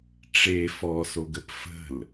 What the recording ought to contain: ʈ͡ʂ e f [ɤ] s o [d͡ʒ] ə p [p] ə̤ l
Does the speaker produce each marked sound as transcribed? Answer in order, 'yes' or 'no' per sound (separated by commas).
no, no, no